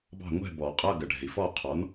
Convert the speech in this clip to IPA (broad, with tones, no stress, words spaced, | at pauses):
bɑ̤˥˨ ŋʷɛ̤˥˨ bɔ˨˩˦qʼʌ˧˥˧ ɡə˨ɖʱɛ̤˨i̯ fɔ˥˨ qʰɔ˩˥n